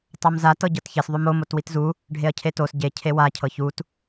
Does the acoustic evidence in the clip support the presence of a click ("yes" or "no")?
no